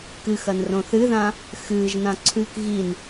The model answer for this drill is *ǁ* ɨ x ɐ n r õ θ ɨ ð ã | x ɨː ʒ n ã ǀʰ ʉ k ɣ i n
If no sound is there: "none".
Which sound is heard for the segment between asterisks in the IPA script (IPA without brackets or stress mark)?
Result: k